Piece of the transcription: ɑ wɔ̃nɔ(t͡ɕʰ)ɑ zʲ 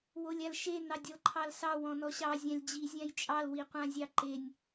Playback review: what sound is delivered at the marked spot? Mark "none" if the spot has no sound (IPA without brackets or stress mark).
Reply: ɕ